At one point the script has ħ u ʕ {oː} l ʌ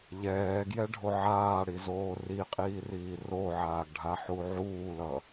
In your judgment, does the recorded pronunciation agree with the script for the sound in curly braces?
no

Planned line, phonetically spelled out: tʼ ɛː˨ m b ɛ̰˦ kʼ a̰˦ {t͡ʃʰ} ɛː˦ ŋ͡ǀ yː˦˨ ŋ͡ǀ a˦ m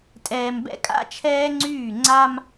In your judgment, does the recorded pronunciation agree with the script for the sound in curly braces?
yes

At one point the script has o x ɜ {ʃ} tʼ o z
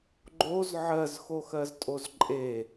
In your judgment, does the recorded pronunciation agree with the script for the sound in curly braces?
no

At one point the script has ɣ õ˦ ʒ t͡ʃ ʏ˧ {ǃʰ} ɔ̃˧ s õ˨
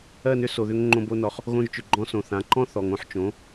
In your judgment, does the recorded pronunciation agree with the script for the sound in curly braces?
no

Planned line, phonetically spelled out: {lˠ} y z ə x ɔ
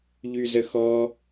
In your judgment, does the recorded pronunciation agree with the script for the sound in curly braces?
no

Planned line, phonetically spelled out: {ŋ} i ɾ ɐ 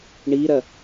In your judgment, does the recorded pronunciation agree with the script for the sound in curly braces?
no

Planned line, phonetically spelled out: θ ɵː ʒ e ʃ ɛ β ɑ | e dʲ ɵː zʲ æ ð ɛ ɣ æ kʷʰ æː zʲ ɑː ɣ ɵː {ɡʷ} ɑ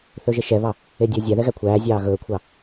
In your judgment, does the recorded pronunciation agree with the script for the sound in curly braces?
no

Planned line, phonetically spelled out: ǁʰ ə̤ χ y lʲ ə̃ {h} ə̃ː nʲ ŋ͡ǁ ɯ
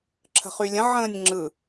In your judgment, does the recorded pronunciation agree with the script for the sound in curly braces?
no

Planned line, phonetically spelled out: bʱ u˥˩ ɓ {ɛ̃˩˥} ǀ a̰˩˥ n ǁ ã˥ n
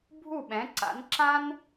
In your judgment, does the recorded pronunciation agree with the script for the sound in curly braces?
yes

